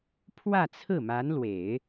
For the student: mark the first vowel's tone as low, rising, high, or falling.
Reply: falling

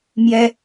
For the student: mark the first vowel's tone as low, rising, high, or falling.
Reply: high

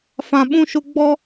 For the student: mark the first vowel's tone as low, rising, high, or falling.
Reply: low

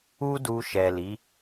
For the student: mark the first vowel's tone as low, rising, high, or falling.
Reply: high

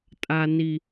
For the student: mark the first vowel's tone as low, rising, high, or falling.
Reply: high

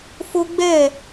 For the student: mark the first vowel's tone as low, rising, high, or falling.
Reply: high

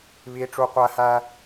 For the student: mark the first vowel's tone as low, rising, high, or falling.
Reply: high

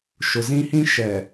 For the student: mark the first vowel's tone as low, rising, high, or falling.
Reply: low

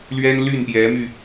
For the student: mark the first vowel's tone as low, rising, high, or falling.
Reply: high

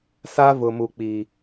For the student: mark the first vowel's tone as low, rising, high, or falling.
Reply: high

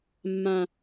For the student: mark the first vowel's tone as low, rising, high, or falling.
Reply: high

